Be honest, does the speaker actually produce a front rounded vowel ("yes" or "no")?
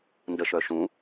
yes